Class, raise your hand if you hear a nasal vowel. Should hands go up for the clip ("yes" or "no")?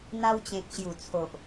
yes